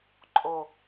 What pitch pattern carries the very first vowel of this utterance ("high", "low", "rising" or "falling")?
low